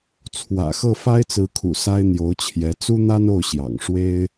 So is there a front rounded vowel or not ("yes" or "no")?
no